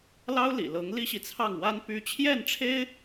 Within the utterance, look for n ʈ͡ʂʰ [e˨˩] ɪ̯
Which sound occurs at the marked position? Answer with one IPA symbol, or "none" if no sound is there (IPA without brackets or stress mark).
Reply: e˥